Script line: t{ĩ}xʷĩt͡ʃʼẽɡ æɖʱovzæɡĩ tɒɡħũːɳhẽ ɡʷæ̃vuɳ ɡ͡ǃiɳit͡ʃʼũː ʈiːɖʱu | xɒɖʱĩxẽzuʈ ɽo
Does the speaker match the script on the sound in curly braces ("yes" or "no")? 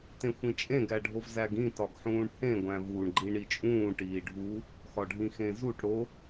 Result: no